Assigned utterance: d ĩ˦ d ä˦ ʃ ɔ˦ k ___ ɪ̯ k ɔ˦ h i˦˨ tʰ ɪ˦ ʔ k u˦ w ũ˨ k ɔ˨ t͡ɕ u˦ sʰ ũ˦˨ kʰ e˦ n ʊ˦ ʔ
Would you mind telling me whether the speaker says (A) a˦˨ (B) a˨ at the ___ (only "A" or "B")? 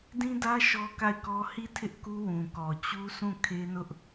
A